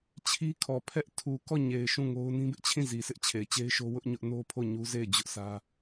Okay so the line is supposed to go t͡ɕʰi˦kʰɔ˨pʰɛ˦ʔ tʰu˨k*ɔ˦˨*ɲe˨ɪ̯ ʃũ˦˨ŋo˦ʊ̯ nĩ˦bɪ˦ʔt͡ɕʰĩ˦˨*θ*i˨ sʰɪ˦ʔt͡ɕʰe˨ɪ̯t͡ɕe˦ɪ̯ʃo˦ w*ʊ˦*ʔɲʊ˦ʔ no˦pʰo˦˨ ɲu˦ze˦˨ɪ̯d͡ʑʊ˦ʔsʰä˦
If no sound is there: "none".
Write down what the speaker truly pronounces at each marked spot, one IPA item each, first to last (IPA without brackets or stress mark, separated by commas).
ɔ˦˨, z, ʊ˦